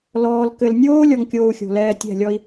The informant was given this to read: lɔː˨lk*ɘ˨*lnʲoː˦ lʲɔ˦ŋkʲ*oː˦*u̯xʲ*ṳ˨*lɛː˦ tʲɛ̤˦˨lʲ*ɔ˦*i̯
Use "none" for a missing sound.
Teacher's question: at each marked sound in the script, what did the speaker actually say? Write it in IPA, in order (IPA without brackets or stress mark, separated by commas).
ɘ˨, oː˦, o̤˨, ɔ˦